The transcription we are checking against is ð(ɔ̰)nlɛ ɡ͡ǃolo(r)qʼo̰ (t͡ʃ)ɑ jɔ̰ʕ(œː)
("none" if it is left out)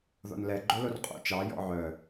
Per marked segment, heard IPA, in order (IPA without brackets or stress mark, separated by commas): ɔ̰, r, t͡ʃ, œ